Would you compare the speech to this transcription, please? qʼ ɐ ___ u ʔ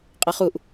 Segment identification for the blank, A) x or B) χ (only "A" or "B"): B